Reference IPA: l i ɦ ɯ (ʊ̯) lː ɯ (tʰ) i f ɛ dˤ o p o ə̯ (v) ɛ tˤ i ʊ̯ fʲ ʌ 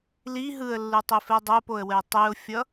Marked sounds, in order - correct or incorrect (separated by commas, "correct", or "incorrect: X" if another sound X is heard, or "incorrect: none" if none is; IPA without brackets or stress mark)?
incorrect: ə̯, incorrect: tˤ, incorrect: w